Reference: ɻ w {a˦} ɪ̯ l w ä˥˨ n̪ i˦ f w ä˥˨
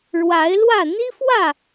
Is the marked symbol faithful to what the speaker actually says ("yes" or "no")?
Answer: no